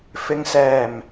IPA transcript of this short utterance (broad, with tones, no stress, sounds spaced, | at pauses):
f ɪ˨ ŋ s ɛː˨˩ m